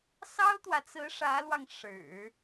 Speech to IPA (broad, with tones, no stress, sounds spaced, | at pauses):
s ɑ˥ ʊ̯ t̪ w ä˨ t͡s ɹ̩˧˥ ʂ ä˧˥ l w ɑ˧ ŋ ʂ ɻ̩˨˩˦